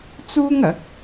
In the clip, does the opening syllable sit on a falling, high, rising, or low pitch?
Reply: high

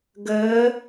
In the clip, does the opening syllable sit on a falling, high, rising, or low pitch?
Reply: rising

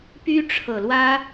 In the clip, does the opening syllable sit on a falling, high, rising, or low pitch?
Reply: high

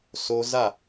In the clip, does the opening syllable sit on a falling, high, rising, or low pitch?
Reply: high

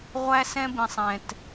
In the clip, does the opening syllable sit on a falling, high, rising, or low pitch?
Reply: high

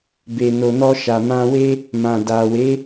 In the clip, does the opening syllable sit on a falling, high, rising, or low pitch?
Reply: low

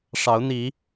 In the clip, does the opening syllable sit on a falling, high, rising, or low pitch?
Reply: rising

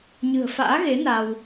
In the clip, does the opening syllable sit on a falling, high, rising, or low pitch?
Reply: low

